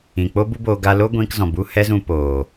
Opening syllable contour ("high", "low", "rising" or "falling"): low